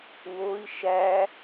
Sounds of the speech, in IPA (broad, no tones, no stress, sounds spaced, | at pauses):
w o i̯ ʃ æ